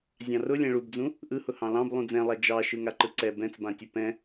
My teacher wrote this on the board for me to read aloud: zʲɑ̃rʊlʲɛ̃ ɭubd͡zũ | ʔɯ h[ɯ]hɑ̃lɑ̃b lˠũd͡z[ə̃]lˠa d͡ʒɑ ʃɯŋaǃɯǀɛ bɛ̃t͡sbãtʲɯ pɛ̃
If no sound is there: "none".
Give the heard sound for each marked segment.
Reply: ʊ, ɛ̃

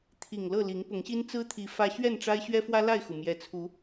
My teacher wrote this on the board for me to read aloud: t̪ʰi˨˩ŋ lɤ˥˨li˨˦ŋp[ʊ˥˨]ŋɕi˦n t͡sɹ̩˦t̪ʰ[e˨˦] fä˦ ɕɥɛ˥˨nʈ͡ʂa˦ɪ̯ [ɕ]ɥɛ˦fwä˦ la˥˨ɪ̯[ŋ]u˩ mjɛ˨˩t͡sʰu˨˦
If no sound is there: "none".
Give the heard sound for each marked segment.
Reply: ʊ˨˦, i˨˦, ɕ, x

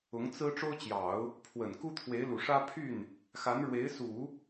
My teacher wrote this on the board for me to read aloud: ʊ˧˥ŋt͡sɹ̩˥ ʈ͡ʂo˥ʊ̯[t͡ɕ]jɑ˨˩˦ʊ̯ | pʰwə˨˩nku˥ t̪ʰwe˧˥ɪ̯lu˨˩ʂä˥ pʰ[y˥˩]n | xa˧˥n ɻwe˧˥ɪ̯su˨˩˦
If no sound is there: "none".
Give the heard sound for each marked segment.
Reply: t͡ɕ, y˥˩

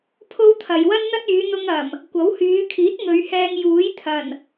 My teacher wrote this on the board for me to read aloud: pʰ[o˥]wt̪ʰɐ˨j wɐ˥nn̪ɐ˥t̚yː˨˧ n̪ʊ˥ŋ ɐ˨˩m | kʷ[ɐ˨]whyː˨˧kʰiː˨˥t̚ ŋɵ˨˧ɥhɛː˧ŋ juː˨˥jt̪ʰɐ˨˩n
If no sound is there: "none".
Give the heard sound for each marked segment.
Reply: o˥, ɐ˨˥

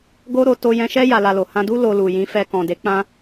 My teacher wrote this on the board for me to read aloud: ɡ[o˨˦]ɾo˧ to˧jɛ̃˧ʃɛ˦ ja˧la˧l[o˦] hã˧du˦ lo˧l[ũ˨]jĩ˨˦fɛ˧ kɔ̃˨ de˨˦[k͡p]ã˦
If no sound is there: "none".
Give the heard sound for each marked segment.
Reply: o˦, o˨, u˨, k͡p

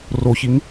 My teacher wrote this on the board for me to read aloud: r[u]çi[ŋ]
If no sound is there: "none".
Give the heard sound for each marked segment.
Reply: o, ŋ

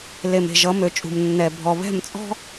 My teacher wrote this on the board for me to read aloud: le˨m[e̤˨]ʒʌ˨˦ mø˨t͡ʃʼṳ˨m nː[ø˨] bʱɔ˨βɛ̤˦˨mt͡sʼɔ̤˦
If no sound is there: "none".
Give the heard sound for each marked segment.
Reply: e̤˨, ɛ˨

